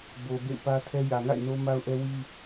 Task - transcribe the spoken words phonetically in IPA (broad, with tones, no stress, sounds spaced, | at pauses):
b o˨ b ḛ˦˨ ɪ̯ p ä˦ tʰ ɛ˦ j ä˨ ŋ a̰˦˨ ɪ̯ n o˦ m a˦ ʊ̯ ʔ ɛ˦ w i˦